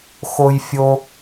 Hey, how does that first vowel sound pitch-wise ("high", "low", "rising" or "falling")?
high